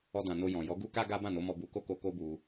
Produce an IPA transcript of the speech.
ɔ˧ d ã˨ n o˧ j ɔ̃˨ j ɔ˨˦ ɡ u˦ k a˦ ɡ a˦ b ã˦˨ n o˨˦ m ɔ˧ b u˧ k o˦ k o˧ k o˦ b u˧

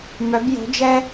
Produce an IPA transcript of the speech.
m œ˨˦ b j o̤˨˦ d͡ʒ ɛ˥

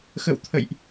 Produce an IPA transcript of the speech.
x ə̰˧˨ w t̪ʰ ə̰˧˨ j ʔ

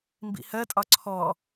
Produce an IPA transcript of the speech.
m b ḭ h ɜ tʼ ɒ ǀʰ ɔ

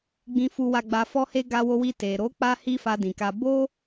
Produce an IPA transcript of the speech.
ɡ͡b ĩ˧ f u˧ w a˧ ɡ͡b a˧ f ɔ˦ h e˦ ɡ a˧ w o˧ w i˧ t e˨ ɾ o˨˦ k͡p a˦ h i˦ f a˧ d ĩ˨ k a˧ b o˦

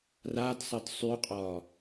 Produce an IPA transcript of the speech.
r a d sˤ ə d sˤ y qʼ ɒ

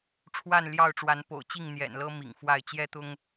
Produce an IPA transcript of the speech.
ʈ͡ʂʰ w a˥˨ n l j ɑ˥˨ ʊ̯ ʈ͡ʂ w a˨˦ n p o̰˨˩ ʊ̯ t͡ɕ i˥˨ ŋ n̪ j ɛ̰˨˩ n l ɤ˦ m ḭ˨˩ ŋ f w a˥˨ ɪ̯ t͡ɕ j ɛ˦ t̪ ʊ˦ ŋ

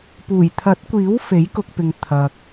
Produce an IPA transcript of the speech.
p uː˨˩ j t̪ʰ ɐ˨˥ t̚ kʷ iː˨˥ w f e˨˥ j k ʊ˧ k̚ p ɪ˨ ŋ t̪ʰ ɐ˨ k̚

